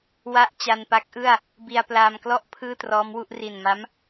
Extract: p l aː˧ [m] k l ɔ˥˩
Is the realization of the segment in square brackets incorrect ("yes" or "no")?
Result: no